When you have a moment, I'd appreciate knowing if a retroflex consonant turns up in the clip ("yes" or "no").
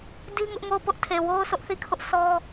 no